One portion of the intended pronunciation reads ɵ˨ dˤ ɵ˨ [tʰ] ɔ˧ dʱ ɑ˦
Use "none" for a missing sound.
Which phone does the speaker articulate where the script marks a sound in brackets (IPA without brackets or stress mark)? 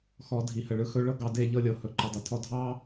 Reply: tʰ